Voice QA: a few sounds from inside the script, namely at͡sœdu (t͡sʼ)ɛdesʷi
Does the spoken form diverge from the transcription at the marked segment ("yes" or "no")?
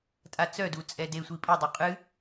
no